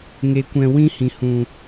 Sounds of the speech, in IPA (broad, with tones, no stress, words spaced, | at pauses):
ŋe˧kʷɛ̃˧ wĩ˦hĩ˨hũ˨